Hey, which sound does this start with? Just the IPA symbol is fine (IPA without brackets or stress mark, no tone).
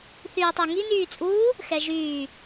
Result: θ